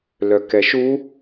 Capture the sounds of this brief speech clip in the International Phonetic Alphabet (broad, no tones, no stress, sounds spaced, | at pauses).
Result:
l œ k ɛ ʃ u